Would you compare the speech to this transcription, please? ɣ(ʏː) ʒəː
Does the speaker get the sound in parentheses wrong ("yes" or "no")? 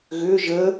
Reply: no